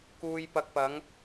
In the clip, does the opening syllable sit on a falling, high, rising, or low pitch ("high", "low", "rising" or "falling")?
low